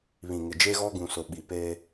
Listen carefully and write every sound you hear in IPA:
β ĩ˨ ŋ ɪ˨ d͡ʒ e˦ ɣ ɔ˦ ɡ ũ˨ s ʊ˨ ɓ i˨ p eː˦

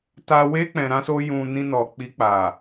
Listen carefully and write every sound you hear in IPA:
t a˧ w e˦ k͡p ɛ̃˧ ɾ ã˦ s o˦ j ũ˧ n ĩ˧ n ɔ˨ k͡p i˧ k͡p a˨

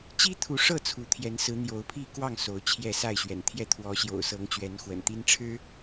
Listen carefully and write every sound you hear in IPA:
t͡ɕ i˦ t̪ʰ u˨˦ ʂ ɤ˥˨ t͡sʰ u˨˦ t̪ʰ j ɛ˨˦ n s ɹ̩˨˦ n̪ j o˨˦ ʊ̯ pʰ i˥˨ k w ɑ˥˨ ŋ s o˨˦ ʊ̯ t͡ɕʰ j ɛ˥˨ s a˥˨ ɪ̯ ɕ ɥ ɛ̰˨˩ n t̪ʰ j ɛ˥˨ t̪ʰ w ɔ˨˦ ɕ j o̰˨˩ ʊ̯ s ɤ˨˦ ŋ t͡ɕ ɥ ɛ˨˦ n x w ə̰˨˩ n t̪ i˦ n ʈ͡ʂʰ ɻ̩˦

